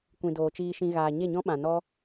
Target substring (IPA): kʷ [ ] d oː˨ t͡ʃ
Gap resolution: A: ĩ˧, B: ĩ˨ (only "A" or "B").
B